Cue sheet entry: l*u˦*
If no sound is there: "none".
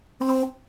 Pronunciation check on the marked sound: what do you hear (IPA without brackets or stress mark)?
o˦